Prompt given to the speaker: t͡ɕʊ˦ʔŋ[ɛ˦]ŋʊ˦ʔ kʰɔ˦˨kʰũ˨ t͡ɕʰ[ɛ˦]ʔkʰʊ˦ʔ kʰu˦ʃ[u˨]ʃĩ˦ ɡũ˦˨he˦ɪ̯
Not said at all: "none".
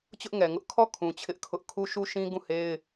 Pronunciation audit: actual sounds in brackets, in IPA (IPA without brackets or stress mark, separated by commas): ɛ˨, ɪ˦, u˦